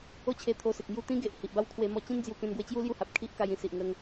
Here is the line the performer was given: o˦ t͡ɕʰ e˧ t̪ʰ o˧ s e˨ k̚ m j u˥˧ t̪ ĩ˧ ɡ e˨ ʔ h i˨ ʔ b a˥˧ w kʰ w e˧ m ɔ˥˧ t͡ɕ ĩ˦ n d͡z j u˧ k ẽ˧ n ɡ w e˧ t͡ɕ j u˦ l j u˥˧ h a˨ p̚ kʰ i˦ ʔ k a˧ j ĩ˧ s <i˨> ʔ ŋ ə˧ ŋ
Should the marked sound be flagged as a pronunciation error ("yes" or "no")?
no